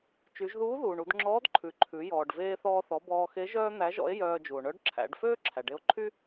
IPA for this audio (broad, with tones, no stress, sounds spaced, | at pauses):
t͡ʃ y˩˧ ʒ ð uː˧˥ ð uː˩ ɳ u˩˧ d ŋ͡ǁ ɔː˧˥ d ǃʰ ʉ˩ ǃʰ ʉ˩˧ j ɔː˩ ɖ v eː˧ θ ɔː˧ θ ɔ˩˧ b ɔː˧ x e˧˥ ʒ œː˥ n̪ æ˧˥ ʒ ɔ̰˧˥ e̯ j œː˧ d͡ʒ u˩ o̯ ɳ œ˧˥ ɖ ǁʰ æ̰˩˧ ɖ f øː˥ ǁʰ æ˩ ɖ e˧ o̯ ǃʰ y˥